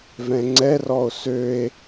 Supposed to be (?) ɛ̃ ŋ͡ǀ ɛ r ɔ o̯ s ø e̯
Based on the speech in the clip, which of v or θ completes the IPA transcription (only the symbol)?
v